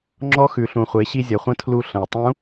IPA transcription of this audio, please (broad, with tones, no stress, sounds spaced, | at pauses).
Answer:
ŋ͡ǁ ɔ˧˥ x ʉ˩ ɬ ũ˩ χʷ e˩˧ ɕ i˧ zʲ ʌ˩ χʷ ə̃˧˥ tʰ l u˧ ɬ ə̃˩ i̯ tˤ ũ˧˥